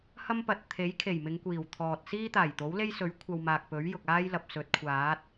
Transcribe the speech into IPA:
h ɐ˥ m p ɐ˨ t̚ t̪ʰ e˨˥ j kʰ e˨˩ j m ɪ˨˧ ŋ kʷ iː˨˩ w t̪ʰ ɔː˨ t̚ s iː˥ t̪ aː˨˩ j t̪ o˨˥ w l e˥ j s ɵ˨˥ ɥ kʷʰ ɐ˧ w m aː˨ k̚ p ɵ˨˥ ɥ j ʊ˨ k̚ aː˥ j l ɐ˨ p̚ s ɵ˨˥ t̚ kʷʰ aː˨˥ t̚

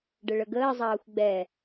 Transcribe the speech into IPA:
ɖ ə ɭ ə ɡ əː zˤ ɑː xʷ ɡ͡b ɛ

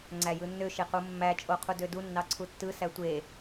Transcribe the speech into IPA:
ŋ͡ǀ æ j ɯ nː ø ʃ e q u mː æ t͡ʃʼ o qʰ u d ø d u nː ɑ ǀʰ u tː ɯ s æ tʷ e

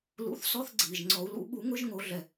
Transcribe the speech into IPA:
l ṵ˨˩˦ θ s ɔ˧˥˧ θ ɡ͡ǀ iː˩ ʒ ŋ͡ǀ ɔ˨˩˦ u̯ l ṵ˨˩˦ ɓ u˨˩˦ ŋ ʊ˧˥˧ ʒ ŋ o˨˩˦ ɮ ɛ˩

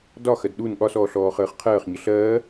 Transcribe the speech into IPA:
d ɒ x ɜ d ɗ u n ɠ ɒ s ɔː ɬ ɔː χ əː χ qʰ ɜː χ ɲ ə ɬ ɜː

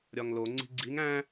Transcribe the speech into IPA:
ɾʲ ɒ ŋ l o ŋ͡ǀ i̤ ɡ͡ǀ i ŋ æ̃

